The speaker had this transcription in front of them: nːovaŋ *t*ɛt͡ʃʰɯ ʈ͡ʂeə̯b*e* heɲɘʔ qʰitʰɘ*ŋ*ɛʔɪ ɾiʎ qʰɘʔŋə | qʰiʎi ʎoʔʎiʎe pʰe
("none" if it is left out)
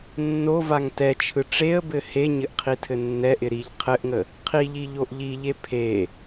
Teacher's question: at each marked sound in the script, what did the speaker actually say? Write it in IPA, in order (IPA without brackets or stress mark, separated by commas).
t, ɘ, nː